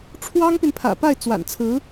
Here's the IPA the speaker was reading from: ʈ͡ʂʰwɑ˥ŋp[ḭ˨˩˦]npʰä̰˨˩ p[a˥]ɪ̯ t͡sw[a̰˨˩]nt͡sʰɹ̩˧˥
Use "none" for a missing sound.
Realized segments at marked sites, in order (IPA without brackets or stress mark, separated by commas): i˨, a˥˩, a̰˨˩